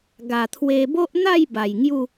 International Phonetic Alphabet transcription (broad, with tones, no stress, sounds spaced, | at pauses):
ɡ a˨˩ t̪ʰ w e˧ b o˦ ʔ n̪ a˥˧ j b a˨˩ j ŋ j u˥˧